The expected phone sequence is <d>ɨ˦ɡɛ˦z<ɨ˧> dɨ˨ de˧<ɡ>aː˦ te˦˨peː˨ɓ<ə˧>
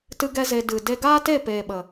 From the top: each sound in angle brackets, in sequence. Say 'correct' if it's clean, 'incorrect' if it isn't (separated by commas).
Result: incorrect, incorrect, correct, incorrect